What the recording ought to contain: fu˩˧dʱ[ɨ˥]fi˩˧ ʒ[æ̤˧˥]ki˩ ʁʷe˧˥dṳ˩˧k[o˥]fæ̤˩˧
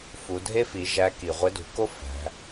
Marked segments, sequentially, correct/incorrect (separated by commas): incorrect, incorrect, correct